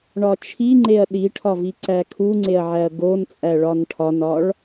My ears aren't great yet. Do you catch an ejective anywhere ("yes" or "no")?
yes